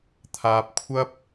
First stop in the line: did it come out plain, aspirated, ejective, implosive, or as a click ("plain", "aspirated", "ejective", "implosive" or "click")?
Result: aspirated